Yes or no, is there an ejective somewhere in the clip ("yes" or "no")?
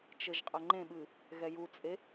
yes